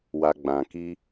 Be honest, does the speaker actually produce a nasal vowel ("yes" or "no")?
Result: yes